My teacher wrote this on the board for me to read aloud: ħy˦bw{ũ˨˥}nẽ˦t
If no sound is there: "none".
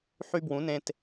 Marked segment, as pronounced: ũ˨˥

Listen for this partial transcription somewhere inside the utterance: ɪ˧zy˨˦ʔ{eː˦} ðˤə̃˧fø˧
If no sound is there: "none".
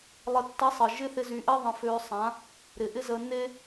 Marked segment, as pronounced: e˦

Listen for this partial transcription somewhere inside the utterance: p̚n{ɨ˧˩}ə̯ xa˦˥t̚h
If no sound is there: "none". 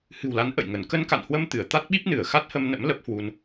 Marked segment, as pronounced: ɨ˧˩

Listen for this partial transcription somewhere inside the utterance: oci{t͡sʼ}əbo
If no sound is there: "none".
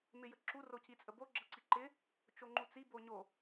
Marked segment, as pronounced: t͡sʼ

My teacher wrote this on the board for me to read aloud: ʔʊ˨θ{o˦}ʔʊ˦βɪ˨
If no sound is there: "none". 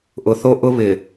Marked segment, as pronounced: o˦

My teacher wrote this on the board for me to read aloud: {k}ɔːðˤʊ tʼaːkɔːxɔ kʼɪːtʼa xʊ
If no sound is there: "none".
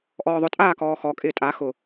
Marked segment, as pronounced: ʔ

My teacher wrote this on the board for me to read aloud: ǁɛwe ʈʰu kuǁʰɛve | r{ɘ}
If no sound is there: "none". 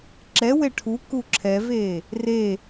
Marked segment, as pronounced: e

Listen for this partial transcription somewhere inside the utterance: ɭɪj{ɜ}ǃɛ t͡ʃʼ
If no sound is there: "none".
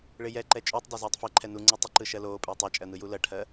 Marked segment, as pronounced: ɛ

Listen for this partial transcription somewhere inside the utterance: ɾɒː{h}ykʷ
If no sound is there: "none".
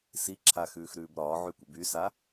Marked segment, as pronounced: ʕ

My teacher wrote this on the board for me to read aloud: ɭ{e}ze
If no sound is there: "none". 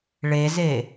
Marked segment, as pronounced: e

